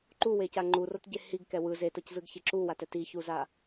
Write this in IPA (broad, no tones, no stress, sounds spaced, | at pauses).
ǃ u w e c a ŋ͡ǃ u r o t ɟ e h i ɡ k ɛ w ɯ z e t ʌ c z ɯ ɡ ç e ǁ u w a t ɛ t i ç u z a